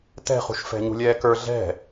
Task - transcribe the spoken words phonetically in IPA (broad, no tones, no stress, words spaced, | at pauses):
tɛ̤χṳʃ fɛ̤ɲṳlʲɛːkə˞ ɮɛ̤